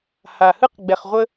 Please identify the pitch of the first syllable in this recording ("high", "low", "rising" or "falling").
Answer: low